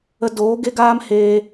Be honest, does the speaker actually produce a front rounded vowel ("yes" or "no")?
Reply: no